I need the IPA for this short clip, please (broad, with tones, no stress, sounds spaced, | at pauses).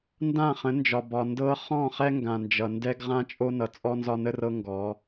n d ã˦˨ χ ə̃˨˦ n d͡ʒ ɒ˨ b ɒ˨ n d ɤ˦ χ ɔ̃˦˨ χ ɛ˦ ŋ ɡ ã˨ n d͡ʒ ʌ˨ n d ɛ˦ ɡ ʁ ã˦ t͡ʃʼ o˦ n ʌ˨ t͡sʼ ɔ˦ n z ɒ˦ n ə˦ r ɤ˦ ŋ ɡ ɔ˨˦